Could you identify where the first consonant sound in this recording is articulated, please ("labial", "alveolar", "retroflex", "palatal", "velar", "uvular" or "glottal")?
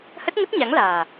glottal